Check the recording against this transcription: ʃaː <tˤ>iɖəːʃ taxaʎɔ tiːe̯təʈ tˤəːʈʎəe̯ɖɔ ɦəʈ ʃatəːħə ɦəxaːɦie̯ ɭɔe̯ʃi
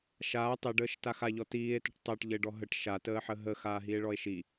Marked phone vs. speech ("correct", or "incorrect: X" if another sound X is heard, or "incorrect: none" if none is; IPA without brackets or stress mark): correct